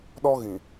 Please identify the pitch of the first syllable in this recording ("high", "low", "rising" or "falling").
high